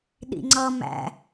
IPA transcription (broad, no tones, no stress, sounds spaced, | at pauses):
ɗ ḭ ŋ͡ǀ ʌ m æ̰